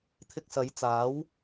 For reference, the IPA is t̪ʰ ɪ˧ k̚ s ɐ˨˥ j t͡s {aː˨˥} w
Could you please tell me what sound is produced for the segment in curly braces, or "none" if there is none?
aː˨˥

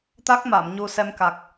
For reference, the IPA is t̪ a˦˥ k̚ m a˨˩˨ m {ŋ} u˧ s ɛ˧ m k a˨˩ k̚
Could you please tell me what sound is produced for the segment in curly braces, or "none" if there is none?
ɲ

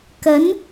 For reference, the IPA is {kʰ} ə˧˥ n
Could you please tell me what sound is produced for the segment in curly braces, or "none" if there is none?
k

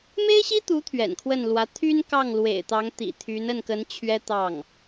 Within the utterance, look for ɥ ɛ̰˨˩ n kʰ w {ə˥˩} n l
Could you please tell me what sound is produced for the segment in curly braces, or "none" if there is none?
ə˥˩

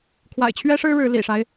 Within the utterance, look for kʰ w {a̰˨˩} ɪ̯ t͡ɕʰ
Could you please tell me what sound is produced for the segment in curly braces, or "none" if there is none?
a̰˨˩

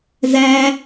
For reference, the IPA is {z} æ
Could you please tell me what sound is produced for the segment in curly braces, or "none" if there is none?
z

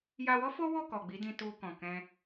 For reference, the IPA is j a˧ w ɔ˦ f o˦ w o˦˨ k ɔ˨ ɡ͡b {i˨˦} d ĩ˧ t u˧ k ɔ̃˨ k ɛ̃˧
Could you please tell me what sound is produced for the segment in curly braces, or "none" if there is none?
i˨˦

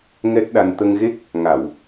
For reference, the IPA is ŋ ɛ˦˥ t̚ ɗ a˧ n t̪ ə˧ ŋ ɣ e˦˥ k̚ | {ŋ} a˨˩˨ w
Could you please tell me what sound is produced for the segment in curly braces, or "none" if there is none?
ŋ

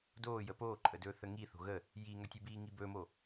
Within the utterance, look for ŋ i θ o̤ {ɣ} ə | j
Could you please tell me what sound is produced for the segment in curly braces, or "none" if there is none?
ɣ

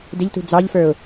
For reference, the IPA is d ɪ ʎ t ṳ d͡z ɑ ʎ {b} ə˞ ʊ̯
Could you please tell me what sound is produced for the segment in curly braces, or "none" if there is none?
f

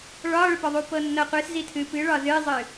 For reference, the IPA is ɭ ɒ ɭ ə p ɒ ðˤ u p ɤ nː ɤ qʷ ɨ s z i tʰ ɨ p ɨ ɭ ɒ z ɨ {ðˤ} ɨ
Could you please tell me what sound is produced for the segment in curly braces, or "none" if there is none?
zˤ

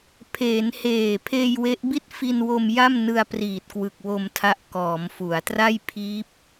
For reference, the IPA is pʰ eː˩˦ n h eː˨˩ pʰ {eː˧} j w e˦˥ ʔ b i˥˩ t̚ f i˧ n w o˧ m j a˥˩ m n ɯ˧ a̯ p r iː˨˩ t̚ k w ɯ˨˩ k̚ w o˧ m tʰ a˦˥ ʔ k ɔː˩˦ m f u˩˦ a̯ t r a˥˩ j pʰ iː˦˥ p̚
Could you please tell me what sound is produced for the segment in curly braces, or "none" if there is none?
eː˧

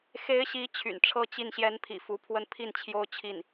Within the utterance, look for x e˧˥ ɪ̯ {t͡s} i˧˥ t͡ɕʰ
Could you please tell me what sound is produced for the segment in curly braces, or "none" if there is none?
ɕ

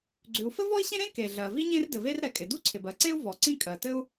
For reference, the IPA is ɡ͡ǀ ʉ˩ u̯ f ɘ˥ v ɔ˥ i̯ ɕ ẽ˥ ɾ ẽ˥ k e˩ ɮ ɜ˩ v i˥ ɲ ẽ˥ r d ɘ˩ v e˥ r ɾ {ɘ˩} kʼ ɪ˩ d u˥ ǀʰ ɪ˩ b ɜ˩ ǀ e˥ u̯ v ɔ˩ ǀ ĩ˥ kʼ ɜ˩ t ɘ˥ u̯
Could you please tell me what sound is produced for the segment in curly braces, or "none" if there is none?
ɛ˩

